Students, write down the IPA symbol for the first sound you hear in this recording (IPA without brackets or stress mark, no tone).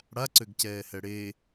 ɽ